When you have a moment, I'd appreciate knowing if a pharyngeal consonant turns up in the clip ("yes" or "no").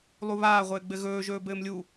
no